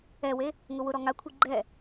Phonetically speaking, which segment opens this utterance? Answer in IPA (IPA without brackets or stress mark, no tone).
ɛ